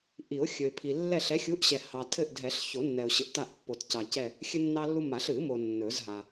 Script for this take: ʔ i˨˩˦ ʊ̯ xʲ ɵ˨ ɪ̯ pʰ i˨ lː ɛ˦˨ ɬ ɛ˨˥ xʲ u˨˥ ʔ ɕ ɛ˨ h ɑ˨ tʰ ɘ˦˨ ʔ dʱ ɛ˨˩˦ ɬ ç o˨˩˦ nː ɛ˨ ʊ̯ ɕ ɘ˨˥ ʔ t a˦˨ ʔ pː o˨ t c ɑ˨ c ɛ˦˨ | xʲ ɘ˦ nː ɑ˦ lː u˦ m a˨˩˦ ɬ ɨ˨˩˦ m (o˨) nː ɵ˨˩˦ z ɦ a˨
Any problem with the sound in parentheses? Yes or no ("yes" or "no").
no